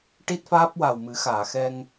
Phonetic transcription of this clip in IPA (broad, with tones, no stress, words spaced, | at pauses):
ʈi˦˥t̚faː˦˥p̚wa˨˩w mɨ˨˩˦xaː˨˩˨ xɛ˧ŋ